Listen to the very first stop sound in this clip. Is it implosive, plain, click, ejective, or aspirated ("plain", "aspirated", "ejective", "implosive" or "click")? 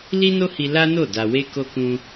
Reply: plain